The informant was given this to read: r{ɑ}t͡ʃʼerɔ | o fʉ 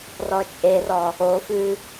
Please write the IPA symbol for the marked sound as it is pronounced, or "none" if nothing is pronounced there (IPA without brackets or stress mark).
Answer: ɔ